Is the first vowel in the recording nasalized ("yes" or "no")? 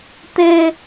no